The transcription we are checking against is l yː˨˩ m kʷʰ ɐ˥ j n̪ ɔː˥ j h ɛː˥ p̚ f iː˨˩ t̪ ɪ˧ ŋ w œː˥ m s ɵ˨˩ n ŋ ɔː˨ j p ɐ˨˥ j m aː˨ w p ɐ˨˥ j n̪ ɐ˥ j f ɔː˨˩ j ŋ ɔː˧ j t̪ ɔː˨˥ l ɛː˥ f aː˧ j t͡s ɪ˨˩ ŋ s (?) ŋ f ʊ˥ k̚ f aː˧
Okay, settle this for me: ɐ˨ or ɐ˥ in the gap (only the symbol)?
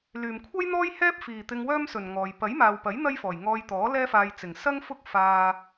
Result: ɐ˥